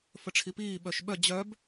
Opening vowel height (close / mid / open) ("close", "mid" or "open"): mid